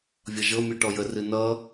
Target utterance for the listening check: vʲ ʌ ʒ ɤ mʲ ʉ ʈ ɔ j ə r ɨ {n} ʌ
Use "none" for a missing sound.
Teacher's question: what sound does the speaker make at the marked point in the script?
n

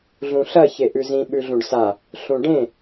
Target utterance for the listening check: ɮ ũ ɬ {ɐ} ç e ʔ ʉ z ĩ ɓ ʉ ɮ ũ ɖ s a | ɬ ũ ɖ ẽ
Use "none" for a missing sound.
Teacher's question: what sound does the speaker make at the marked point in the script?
ɐ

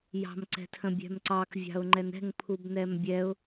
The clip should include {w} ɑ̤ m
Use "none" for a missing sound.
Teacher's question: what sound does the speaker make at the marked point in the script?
j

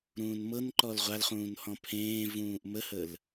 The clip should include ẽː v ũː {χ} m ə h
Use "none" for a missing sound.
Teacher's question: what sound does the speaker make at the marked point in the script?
ʔ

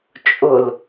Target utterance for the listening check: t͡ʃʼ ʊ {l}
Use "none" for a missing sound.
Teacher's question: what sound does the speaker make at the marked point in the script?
l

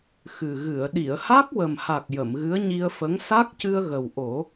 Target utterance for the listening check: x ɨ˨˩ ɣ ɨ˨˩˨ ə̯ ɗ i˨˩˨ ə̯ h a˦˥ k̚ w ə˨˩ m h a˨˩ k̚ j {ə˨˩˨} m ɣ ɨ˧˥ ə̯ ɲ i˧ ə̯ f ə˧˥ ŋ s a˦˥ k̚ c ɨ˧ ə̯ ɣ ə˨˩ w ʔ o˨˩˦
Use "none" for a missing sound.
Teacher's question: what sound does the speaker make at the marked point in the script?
ə˨˩˨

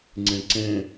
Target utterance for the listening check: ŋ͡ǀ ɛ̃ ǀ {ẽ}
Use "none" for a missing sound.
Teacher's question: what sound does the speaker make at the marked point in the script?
ɛ̃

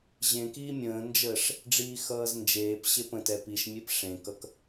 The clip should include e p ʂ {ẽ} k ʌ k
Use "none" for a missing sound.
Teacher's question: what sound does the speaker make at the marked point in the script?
ẽ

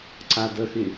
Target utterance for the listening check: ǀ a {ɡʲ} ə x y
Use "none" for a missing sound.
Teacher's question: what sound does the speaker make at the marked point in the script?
d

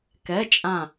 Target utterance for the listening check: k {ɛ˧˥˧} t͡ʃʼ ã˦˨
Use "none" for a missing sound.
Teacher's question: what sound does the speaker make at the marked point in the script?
ɛ˧˥˧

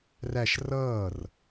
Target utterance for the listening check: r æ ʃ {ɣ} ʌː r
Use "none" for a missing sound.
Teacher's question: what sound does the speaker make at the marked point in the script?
r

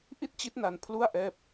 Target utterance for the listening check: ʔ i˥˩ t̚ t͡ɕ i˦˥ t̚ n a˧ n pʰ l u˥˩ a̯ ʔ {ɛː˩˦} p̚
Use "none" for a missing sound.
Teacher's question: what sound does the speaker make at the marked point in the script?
ɛː˥˩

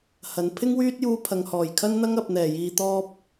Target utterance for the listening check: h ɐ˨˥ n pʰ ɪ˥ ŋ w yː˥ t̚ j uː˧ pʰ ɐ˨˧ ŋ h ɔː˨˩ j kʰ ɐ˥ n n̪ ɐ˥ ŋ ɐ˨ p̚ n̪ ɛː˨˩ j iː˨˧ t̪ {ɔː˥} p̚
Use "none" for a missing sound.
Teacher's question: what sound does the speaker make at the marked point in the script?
ɔː˥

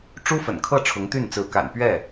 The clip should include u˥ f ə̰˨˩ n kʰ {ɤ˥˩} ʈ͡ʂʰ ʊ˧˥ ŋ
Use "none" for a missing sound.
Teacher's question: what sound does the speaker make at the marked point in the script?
ɤ˥˩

